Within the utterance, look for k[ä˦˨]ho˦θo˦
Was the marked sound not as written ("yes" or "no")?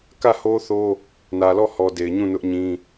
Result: no